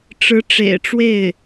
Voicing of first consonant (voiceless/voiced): voiceless